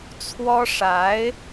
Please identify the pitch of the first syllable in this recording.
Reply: high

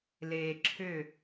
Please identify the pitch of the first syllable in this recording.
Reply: low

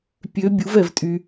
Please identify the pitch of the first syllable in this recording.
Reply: rising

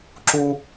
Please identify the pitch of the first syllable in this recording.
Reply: high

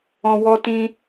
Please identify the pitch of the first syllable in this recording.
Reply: low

